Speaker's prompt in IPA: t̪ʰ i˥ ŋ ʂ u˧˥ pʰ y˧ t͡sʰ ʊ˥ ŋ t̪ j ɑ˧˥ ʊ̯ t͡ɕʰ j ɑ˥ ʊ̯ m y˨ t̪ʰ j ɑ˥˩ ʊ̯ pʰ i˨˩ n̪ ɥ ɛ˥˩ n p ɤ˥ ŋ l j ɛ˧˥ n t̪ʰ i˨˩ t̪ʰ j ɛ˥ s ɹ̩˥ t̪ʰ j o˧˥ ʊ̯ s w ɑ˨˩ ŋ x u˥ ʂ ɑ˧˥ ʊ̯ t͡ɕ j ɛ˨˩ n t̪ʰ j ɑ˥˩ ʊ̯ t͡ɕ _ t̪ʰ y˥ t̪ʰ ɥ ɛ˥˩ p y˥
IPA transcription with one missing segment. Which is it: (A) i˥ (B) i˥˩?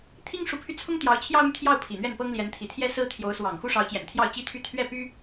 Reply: A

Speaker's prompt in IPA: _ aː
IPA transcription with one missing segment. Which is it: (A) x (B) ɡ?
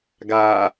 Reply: B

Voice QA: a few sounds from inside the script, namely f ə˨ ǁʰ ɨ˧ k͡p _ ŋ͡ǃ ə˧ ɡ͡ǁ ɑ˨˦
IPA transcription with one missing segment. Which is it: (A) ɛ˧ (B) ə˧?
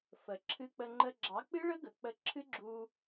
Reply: B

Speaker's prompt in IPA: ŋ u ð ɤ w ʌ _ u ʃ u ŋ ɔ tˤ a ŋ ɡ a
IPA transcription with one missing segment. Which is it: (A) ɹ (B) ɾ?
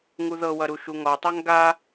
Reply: B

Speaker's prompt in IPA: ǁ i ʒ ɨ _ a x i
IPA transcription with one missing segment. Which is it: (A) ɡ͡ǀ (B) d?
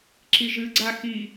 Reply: A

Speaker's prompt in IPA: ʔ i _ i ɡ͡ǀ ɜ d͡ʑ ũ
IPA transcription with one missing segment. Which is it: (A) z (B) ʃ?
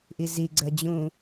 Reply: A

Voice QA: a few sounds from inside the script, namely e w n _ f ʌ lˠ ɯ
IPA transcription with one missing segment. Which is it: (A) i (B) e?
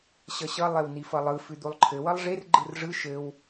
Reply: A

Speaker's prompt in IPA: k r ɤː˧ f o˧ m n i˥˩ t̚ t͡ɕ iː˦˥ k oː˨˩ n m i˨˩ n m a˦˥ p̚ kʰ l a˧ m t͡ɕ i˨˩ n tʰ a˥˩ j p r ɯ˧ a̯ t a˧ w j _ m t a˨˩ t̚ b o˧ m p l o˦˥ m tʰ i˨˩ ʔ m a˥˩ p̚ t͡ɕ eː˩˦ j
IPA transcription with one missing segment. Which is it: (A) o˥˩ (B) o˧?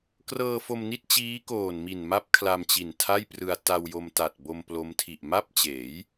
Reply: B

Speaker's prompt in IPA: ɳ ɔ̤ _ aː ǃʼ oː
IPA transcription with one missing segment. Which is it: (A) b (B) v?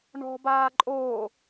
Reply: A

